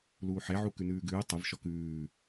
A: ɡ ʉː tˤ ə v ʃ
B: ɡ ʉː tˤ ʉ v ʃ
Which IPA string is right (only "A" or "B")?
A